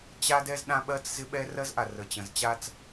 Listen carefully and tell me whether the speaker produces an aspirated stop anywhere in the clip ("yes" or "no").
no